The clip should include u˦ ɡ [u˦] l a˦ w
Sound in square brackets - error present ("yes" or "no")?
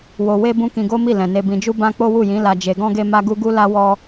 no